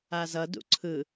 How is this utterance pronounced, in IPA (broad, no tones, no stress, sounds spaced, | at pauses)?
a z ʌ d ṵ ǀʰ ɯ